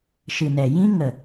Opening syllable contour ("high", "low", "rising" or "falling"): low